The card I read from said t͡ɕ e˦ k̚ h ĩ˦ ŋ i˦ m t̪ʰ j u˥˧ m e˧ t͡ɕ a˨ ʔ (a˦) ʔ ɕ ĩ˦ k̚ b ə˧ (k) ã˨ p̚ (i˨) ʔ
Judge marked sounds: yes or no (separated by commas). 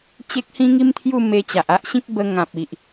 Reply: yes, no, yes